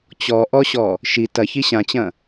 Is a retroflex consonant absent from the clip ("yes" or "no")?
yes